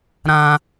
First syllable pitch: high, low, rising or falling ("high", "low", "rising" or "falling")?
low